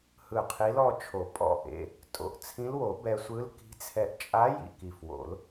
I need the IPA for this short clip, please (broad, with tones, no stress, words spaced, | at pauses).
hɯ˧˩qʰi˧˥lɔ˥˧t͡ʃʰo˨˩˦ pʼɔ̰˧˩ʔḛ˩˧˩ | tʼo̰˩˧˩ʔt͡sʰĩ˧˥lwo˨˩˦ bɛ˧sʷɯ˧˥lki̤˧˥t͡sʰɛ˧ʔ t͡ʃʼa˧˥ jḭ˧˩ki˧˩fwo̰˨˩˦l